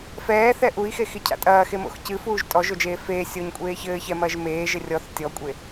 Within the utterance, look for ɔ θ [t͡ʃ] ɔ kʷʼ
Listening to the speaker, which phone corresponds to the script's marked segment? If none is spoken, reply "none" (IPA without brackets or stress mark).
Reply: tʲ